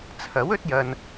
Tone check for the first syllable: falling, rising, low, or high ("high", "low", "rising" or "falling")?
rising